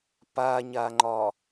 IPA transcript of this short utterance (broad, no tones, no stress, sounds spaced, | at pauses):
p a ɲ a ŋ͡ǃ ɒ